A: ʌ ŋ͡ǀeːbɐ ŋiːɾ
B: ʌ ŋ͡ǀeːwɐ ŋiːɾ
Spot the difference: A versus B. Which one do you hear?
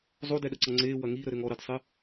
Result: B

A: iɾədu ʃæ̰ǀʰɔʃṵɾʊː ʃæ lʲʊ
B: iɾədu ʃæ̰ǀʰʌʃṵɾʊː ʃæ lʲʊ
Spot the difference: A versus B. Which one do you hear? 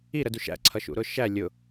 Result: B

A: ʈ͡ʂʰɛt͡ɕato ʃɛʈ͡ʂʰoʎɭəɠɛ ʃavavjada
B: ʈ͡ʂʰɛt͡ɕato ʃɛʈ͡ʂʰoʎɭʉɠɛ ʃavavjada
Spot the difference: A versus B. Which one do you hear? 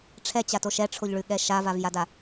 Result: B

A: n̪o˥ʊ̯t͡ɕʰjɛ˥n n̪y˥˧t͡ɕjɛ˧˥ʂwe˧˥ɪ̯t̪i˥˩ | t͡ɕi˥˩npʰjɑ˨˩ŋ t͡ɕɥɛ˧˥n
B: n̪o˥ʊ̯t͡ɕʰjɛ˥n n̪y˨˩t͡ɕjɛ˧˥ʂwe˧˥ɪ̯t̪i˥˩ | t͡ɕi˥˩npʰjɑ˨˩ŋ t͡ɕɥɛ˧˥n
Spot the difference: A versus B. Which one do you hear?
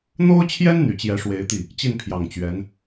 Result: B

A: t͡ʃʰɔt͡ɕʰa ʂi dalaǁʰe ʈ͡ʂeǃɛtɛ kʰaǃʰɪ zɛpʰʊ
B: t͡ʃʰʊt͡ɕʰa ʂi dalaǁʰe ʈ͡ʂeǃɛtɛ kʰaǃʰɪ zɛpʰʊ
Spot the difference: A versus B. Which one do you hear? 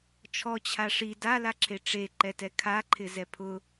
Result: A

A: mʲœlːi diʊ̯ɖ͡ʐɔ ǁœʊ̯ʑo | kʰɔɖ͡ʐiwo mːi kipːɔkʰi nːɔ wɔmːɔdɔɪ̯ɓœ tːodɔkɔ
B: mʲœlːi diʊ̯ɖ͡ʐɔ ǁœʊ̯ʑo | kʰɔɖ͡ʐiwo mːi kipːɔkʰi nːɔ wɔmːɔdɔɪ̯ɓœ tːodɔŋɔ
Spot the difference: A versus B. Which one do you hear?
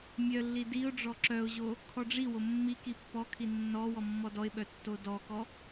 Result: A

